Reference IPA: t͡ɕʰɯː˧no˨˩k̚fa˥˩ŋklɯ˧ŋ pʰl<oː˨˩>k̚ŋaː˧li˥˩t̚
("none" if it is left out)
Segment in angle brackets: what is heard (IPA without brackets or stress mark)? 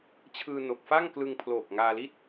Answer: oː˨˩